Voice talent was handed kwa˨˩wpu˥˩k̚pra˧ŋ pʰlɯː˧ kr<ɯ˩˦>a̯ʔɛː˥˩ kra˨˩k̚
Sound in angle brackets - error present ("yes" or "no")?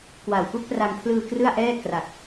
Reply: yes